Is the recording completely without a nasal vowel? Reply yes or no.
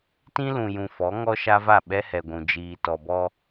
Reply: no